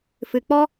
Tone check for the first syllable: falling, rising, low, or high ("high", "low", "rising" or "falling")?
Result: low